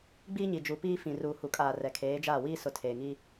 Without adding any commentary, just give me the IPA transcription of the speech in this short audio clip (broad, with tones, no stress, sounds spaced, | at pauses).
ɡ͡b iː˦ ɲ i˨ d͡ʒ u˨ p iː˦ f ĩ˨ r uː˨ h u˨ kʼ aː˨ r ɛ˨ kʰ eː˨˦ d͡ʒ aː˦˨ w iː˦ s ʊ˨ tʰ eː˨ ŋ i˦